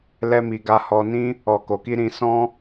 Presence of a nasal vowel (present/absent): present